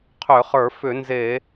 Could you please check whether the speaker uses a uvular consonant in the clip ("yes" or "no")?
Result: yes